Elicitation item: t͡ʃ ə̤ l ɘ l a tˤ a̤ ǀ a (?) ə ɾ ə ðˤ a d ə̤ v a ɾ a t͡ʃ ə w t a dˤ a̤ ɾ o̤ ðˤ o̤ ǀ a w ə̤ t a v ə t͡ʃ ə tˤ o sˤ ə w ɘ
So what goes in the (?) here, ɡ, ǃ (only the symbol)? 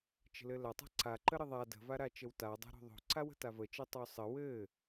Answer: ǃ